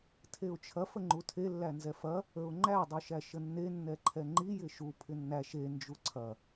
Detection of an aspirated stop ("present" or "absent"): present